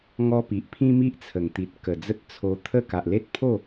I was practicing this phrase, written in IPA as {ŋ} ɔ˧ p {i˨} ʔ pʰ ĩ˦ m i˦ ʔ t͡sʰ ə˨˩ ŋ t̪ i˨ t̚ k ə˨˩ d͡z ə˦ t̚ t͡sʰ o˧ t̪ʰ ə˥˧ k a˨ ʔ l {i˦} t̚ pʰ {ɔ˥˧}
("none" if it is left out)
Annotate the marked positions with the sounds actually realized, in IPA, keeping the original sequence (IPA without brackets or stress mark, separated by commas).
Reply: ŋ, i˨, e˦, o˥˧